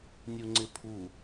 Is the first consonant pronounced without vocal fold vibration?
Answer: no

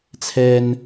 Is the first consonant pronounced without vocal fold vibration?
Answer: yes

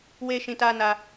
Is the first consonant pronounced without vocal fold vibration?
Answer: no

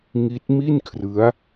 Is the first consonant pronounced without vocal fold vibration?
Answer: no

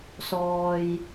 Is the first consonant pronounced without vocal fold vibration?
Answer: yes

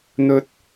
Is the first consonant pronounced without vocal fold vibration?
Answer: no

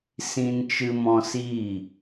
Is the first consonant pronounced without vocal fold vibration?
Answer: yes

